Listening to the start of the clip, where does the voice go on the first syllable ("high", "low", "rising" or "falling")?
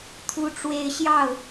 high